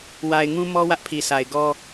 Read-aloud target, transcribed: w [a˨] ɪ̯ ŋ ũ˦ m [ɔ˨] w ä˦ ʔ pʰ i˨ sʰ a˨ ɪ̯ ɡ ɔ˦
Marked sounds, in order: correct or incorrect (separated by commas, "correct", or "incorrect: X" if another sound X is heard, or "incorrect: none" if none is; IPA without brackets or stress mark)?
correct, incorrect: ɔ˦